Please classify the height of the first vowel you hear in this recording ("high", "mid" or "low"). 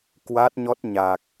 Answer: low